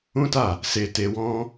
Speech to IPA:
ũ˦ t a˦˨ | s e˧ t e˧ w ɔ̃˦

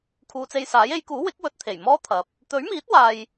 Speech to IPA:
kʰ uː˨˧ t͡s e˧ j s aː˨˥ j e˨˧ j k uː˨˥ w ɪ˨˥ k̚ w ɵ˨ t̚ t̪ʰ e˨˩ j m ɔː˥ t̪ʰ ɐ˨ p̚ | t̪ ɵ˨˥ ɥ m iː˨˥ t̚ w aː˨ j

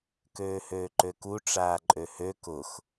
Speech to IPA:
k øː h øː ǃ ø k u ʈ͡ʂ aː ǃʼ ø h ø k ʊ x

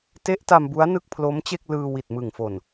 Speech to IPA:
t e˦˥ ʔ t a˧ m b u˦˥ a̯ n ɯ˥˩ k̚ pʰ l o˦˥ m t͡ɕ e˥˩ k̚ l ɯː˧ w i˨˩ t̚ m ɯ˨˩ ŋ f o˨˩ n

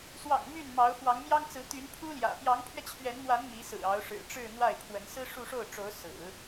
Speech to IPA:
s w ɑ̰˨˩ ŋ m y˥˩ n m ɑ˧˥ ʊ̯ f w ɑ˧˥ ŋ m j ɑ˥ ŋ t͡s ɹ̩˧˥ t̪ y˧˥ n pʰ u˥ l j ä̰˨˩ p j ɑ˧˥ ŋ pʰ ɥ ɛ˧ t͡ɕʰ ɥ ɛ˧˥ n m w a˧˥ n m i˧˥ s ɹ̩˨˩ ɑ˧˥ ʊ̯ ʂ ɻ̩˨˩ ʈ͡ʂ ɻ̩˥˧ n̪ w a˥˩ ɪ̯ pʰ w ə˧˥ n s ɹ̩˥ ʂ u˥˧ ʂ o˥˩ ʊ̯ ʈ͡ʂ o˧˥ ʊ̯ s ɹ̩˨˩˦

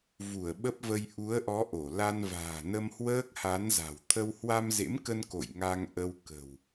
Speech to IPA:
v u˧˩ ə̯ ɓ ə˦˥ p̚ v ə˧ j ʔ u˨˦ ə̯ ʔ ɔ˨˦ ʔ o˧˩ l a˧ n v a̤ː˨˩ n ə˧ m h w əː˦˥ k̚ h a˨˦ n z a̤˨˩ w t̪ʰ ə˧ w h w a˧ m z ḛ˧˥ m k ə˧ n k o̰˧˨ j ŋ a˧ ŋ ʔ ə˧ w k ə̤˨˩ w

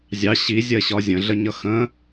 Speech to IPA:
zʲ ɑ ɕ i zʲ ɜ ɕ ɒ zʲ ə̃ ɮ ə ɲ ʌ x ə̃

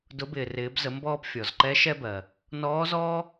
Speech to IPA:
d ʊ˩˧ b ɪː˩ r ɪː˩˧ b z ə˩˧ m b ɔː˧ p fʲ ɔ˩ z ǃ ɛ˧˥ ʃ ɛ˧ b ɜ˩ | n ɔː˧˥ z ɔː˥

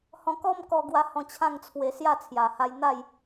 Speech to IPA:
h ɔ̃˧ k ɔ˦ m k ɔ˧ ɡ w a˧ h ɔ̃˧ t͡ɕʰ ã˥˧ ŋ t͡sʰ w e˧ s j a˥˧ t͡sʰ j a˨˩ h a˧ j n̪ a˥˧ j

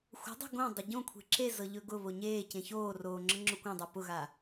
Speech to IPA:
xʷ ə̤ dˤ ɛ̤ ɡ õ dˤ ɵ ɟ õ kʷʰ e̤ ǁ e z ɤ ʎ ɵ ɡ ʊ β o ɲ eː c ẽ ç oː r oː ŋ͡ǁ ɤ ŋ͡ǁ ʊ kʷ ã dˤ ɛ p ʊ ɣ a

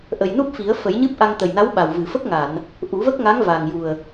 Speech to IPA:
ʔ ə˨˩ j n u˦˥ p̚ f i˨˩˦ ə̯ f ə˨˩˦ j ɲ ɨ˦˥ p̚ ʔ a˧ ŋ t̪ ə˨˩ j n a˧˥ w ɓ a˨˩ w v ɨ˨˩˨ f ə˦˥ k̚ ŋ a˨˩˨ n | ʔ u˨˩˦ v ə˦˥ k̚ ŋ a˧˥ ŋ v a˨˩ ŋ j u˨˩ ə̯

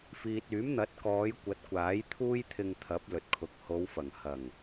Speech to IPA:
f iː˨ t̚ yː˨˥ m n̪ ɐ˨˥ t̚ k ɔː˨˧ j kʷ ɐ˨˥ t̚ kʷ aː˨˥ j t̪ʰ uː˥ j t̪ʰ ɪ˧ ŋ t̪ʰ ɐ˨˥ p̚ l ɵ˨ t̚ kʰ ʊ˨ k̚ h o˨˧ w f ɐ˨˩ ŋ h ɐ˨˩ ŋ

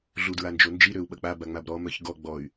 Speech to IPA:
ɮ u d ɹ a n d͡ʒ o n d͡ʒ i ɾ ø u̯ ɓ ɐ k͡p a b a ŋ͡m a b ɾ ɔ m œ ç ɡ ɔ ɡ͡b ɔ y̯

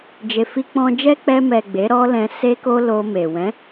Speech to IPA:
d͡ʒ e˨ f i˧ k͡p ɔ̃˧ d͡ʒ ɛ˦ k͡p ɛ˧ m ɛ˨ ɡ͡b e˨˦ ɾ ɔ˦ l ɛ̃˧ s e˦ k o˦ l o˧ m e˨ w ɛ̃˨˦

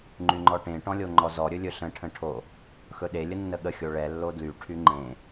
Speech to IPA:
ŋ͡ǃ y ŋ͡ǃ ɔ ʈ ẽ ʈ ɔ̃ lʲ o ŋ͡ǃ ɔ z ɔ ɾʲ ɵ lʲ ɵ ɬ ə̃ ʈʰ ə̃ ʈʰ o | x ɵ ɗ e lʲ ə nː ə ɠ ə xʲ o ɭ ɛ lː o d l y ʈʰ y ŋ͡ǃ ẽ

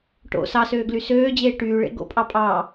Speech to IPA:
ʈ o̰ s ɑ s øː ɡ l y s øː d͡ʑ eː ʈ yː ɭ ḛ ɡ o̰ pʼ ɑ pʼ ɑː

